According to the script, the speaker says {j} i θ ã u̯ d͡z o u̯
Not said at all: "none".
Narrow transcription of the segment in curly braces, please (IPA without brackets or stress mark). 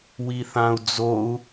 w